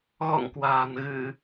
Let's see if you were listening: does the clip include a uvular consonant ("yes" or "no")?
no